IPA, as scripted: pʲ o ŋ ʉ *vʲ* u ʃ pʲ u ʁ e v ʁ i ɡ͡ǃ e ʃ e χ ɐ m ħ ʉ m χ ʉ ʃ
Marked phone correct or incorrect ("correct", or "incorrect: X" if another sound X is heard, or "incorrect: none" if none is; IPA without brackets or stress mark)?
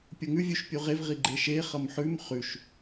correct